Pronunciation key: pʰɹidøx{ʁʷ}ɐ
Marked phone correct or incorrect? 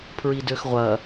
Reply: correct